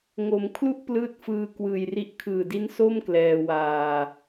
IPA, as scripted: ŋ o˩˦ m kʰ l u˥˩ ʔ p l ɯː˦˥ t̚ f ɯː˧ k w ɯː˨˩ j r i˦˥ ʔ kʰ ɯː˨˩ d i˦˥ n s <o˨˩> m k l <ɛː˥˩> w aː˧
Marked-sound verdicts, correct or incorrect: incorrect, incorrect

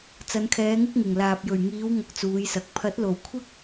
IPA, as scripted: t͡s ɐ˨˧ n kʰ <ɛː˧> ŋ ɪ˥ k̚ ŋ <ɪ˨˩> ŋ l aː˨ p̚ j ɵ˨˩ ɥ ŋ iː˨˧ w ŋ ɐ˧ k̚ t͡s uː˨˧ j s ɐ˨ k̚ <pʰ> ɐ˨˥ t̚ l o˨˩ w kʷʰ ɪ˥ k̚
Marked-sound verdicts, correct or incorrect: incorrect, correct, correct

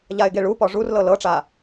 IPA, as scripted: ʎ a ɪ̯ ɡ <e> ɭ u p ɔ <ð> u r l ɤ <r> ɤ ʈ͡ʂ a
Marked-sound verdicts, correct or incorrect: correct, incorrect, incorrect

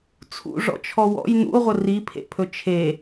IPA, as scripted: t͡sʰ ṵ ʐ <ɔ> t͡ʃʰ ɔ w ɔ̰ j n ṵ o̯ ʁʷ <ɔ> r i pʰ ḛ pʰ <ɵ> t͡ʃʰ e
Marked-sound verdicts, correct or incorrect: incorrect, incorrect, correct

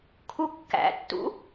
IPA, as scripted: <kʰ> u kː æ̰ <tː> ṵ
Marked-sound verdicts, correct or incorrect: correct, correct

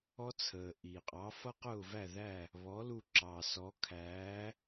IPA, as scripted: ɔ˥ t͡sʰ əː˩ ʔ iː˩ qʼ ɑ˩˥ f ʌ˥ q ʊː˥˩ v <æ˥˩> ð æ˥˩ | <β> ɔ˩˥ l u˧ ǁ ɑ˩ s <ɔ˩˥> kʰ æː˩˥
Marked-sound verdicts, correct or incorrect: correct, correct, correct

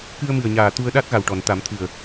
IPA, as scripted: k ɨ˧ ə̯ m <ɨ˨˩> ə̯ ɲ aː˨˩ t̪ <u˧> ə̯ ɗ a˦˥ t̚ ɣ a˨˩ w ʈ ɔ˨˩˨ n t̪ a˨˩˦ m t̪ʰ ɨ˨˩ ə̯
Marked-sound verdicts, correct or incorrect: correct, correct

